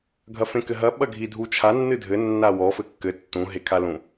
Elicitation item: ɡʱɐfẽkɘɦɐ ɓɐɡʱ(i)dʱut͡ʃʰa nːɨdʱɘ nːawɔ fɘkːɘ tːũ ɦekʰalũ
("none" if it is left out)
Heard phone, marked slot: i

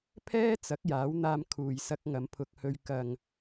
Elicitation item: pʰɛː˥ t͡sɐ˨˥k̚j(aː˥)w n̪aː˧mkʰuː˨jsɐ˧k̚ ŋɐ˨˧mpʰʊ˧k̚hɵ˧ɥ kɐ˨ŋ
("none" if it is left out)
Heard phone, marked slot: aː˨˥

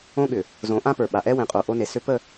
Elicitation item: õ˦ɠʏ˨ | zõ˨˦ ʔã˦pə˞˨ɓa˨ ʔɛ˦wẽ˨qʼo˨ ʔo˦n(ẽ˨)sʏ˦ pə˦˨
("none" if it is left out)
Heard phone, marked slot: e˨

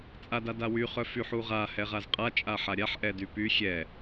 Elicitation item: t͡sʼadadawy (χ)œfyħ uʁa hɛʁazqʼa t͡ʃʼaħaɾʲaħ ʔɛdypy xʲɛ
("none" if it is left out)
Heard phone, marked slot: χ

